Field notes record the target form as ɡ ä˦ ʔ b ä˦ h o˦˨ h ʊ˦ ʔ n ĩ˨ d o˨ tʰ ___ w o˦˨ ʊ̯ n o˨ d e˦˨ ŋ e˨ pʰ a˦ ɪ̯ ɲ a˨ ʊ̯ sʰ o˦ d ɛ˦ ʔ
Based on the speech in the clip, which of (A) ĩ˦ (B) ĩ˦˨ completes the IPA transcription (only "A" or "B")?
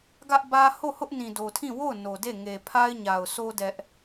B